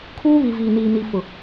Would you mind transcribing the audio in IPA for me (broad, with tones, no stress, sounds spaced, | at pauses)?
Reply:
kʰ uː˦ β i˨ v iː˨ n iː˨ n i˨ f ʊ˨